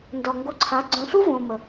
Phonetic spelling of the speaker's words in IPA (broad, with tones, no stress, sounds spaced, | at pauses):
n d ɔ˨ ŋ ɡ o˧ ǀʰ a˨˦ ɡ͡ǀ œ̃˨ ɬ u˦ v õː˨ m ə˨